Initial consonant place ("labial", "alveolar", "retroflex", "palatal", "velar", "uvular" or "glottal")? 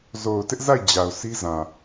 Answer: alveolar